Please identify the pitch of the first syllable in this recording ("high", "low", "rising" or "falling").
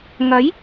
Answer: rising